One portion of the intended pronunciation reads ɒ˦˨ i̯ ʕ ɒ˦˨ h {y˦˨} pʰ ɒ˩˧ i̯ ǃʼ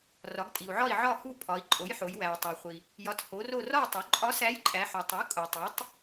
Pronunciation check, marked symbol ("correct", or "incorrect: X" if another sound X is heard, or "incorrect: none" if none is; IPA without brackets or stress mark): incorrect: u˦˨